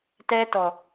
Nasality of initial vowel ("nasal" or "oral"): oral